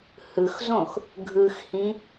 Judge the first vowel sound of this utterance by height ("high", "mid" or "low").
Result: high